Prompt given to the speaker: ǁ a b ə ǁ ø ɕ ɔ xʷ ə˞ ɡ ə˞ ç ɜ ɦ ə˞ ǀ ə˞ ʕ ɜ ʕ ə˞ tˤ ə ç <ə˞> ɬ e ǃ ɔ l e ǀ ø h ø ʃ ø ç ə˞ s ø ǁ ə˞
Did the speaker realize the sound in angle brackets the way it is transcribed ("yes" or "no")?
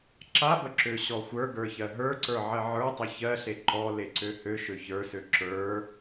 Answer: no